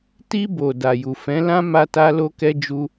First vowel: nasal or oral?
oral